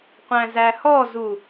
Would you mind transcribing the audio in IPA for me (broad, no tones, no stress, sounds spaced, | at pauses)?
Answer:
qʷ æ̃ z æ h ɔ z u